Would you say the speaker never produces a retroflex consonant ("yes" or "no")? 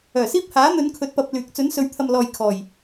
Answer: yes